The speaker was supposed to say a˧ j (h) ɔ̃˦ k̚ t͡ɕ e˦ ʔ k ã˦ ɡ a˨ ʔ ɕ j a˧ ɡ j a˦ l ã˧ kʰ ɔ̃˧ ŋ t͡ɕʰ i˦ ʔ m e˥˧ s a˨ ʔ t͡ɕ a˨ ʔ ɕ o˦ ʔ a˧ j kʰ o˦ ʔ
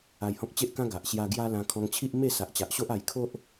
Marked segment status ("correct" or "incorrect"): correct